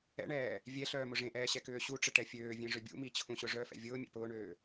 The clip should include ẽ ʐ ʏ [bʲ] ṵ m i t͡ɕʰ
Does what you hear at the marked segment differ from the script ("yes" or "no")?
no